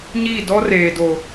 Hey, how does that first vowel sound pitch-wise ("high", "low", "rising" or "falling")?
falling